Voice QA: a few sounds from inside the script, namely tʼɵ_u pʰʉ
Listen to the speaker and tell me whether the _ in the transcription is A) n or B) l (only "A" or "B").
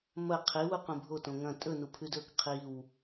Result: A